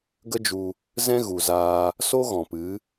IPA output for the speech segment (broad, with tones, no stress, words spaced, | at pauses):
ɡə˦d͡ʒu˧ | zɛ̃˦ɣu˨zaː˧ | so˦ɣɔ̃˨pɨ˨˦